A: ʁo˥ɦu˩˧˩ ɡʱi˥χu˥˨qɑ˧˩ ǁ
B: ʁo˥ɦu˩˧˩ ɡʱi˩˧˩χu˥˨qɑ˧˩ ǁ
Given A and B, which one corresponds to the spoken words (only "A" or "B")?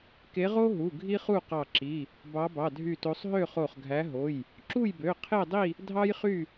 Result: A